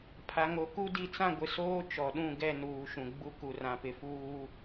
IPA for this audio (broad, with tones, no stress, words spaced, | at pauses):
pʰa˨ŋo˨ku˦ di˨t͡sã˦˨ɡʷɪ˨soː˦ t͡ʃɔ˨ɗũ˦˨ɡɛ˦˨ nuː˨ʃũ˨ ɡ͡bu˦ ku˨rã˨pɪ˨ fuː˦